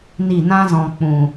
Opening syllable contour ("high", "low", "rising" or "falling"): falling